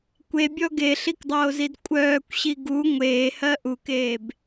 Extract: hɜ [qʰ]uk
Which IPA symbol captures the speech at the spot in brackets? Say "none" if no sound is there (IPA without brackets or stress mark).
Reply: ʔ